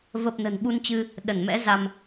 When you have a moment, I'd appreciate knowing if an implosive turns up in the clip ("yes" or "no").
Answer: yes